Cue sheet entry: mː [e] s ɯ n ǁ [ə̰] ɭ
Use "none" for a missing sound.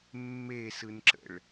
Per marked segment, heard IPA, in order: e, ə̰

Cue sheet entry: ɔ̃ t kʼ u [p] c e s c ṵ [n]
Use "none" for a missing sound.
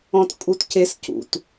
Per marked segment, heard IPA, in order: t, t

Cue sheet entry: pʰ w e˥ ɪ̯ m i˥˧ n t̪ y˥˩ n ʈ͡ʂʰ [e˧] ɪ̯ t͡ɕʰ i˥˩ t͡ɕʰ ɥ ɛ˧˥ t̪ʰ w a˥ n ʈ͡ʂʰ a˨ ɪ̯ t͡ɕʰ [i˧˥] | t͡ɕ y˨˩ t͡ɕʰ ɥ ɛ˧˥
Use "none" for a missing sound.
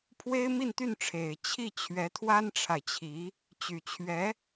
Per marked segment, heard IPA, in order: e˨˩, i˧˥

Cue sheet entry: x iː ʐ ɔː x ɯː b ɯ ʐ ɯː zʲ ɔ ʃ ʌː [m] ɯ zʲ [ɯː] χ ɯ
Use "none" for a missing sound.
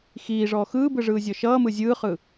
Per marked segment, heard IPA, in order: m, ɯː

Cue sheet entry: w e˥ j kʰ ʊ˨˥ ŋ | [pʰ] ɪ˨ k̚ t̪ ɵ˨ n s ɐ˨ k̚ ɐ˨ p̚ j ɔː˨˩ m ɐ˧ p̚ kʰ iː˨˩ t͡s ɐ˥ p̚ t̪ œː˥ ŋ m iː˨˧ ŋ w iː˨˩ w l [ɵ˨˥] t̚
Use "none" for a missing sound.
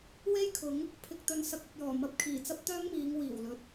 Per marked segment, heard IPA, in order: pʰ, ɵ˨

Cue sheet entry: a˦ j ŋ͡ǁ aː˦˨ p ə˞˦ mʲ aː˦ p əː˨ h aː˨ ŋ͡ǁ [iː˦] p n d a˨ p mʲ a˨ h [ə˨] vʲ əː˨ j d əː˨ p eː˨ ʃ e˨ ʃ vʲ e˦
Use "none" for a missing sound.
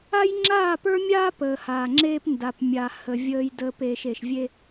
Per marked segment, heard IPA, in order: eː˦, ə˨

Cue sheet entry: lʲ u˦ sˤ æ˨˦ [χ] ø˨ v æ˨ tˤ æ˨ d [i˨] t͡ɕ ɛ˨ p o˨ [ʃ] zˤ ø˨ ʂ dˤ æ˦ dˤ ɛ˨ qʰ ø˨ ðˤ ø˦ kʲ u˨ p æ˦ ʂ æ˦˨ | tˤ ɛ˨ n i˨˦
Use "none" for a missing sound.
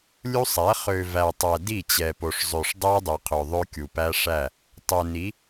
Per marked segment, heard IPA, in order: χ, i˦˨, ʂ

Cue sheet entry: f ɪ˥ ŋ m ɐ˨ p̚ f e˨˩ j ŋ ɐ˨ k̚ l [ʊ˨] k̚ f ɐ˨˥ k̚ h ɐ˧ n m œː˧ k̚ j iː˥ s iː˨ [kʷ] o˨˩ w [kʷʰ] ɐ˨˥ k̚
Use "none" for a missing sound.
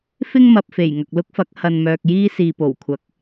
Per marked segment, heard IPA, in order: ʊ˥, p, kʷʰ

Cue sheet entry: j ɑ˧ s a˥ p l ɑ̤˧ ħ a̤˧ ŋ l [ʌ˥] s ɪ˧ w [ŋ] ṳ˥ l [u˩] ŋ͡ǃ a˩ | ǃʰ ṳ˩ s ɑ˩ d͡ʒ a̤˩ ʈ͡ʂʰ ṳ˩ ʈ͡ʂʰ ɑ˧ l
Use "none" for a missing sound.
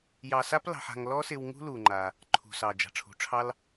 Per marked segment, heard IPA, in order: ɔ˥, ŋ, u˩

